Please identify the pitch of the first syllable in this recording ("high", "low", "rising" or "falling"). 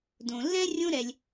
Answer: low